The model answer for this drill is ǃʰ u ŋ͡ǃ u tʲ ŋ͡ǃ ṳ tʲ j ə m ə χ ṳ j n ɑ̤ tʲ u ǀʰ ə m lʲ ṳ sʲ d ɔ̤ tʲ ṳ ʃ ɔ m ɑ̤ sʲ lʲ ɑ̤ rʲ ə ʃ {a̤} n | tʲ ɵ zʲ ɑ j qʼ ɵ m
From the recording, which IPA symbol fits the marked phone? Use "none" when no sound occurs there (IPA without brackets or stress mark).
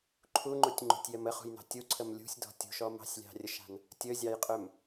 a̤